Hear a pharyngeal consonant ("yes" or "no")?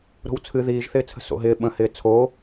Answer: no